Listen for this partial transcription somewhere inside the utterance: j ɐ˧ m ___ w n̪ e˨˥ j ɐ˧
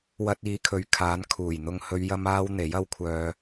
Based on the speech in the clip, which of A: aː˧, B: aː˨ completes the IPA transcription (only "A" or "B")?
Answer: A